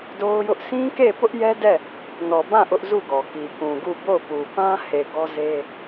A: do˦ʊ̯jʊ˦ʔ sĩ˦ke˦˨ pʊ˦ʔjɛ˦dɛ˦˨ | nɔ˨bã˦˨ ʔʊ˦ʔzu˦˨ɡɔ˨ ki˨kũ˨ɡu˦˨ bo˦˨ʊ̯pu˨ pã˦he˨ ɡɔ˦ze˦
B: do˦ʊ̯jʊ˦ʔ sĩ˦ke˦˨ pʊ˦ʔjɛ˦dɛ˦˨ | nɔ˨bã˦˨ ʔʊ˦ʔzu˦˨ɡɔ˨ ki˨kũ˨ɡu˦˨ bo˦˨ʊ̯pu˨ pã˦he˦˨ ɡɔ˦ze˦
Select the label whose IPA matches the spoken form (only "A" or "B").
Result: A